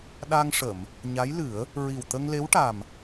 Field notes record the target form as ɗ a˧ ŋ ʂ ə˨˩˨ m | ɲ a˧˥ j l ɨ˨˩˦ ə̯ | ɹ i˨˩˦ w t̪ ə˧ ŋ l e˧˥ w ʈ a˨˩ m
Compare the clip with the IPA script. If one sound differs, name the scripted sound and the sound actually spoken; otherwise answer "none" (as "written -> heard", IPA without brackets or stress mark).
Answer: i˨˩˦ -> i˨˩